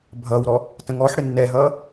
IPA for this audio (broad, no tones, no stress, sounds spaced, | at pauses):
bʱ ʌ w ɾ ɔ | t ə̃ ŋ ɔ ħ ɽ ɪ nː ɛ ɦ ʌː